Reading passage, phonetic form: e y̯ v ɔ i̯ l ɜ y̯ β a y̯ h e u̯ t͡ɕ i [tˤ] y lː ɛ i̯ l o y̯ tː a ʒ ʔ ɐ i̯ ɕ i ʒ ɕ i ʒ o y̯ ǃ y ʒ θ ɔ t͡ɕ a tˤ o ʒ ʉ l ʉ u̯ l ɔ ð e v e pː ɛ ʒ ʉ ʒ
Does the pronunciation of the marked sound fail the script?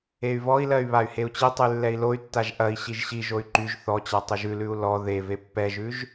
no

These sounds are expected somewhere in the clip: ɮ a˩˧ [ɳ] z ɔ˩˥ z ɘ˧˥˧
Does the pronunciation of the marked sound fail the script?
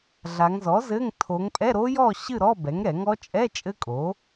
yes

